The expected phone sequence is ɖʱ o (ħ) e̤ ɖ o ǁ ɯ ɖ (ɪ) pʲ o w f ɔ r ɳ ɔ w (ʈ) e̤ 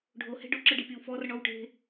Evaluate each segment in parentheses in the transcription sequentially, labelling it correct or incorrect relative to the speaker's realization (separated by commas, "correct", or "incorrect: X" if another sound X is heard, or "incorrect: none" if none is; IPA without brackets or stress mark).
incorrect: h, incorrect: i, correct